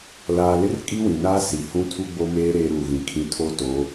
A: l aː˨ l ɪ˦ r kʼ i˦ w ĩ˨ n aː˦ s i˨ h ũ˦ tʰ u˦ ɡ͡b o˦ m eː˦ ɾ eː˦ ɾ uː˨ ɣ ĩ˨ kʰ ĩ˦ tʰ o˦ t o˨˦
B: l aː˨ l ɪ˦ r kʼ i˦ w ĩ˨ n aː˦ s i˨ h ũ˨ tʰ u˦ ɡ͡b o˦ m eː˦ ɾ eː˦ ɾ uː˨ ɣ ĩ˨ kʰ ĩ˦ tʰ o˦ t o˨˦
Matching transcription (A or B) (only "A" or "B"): A